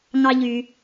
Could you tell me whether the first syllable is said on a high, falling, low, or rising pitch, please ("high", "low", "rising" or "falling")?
low